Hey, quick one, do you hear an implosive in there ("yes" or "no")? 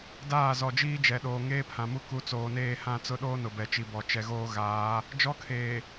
yes